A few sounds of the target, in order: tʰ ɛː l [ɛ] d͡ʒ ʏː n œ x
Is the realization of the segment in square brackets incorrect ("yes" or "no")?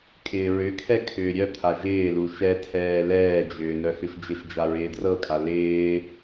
yes